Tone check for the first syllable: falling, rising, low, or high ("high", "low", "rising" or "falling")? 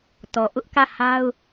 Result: low